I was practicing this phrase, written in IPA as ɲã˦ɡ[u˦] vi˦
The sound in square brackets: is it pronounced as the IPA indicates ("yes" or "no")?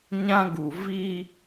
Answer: no